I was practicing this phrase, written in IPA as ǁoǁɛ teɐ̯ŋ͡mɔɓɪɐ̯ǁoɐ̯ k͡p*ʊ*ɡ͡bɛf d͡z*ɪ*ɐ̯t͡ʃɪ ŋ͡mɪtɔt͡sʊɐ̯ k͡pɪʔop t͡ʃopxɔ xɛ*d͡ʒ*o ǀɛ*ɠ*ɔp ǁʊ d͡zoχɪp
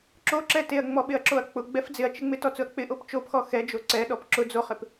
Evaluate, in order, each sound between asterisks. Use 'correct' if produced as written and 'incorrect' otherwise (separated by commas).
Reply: correct, correct, correct, incorrect